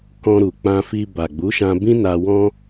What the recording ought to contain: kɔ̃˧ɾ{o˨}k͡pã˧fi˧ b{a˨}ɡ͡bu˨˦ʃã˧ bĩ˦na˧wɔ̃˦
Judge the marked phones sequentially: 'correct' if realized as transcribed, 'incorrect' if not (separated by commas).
incorrect, correct